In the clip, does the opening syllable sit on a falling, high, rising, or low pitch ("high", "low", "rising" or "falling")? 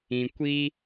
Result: low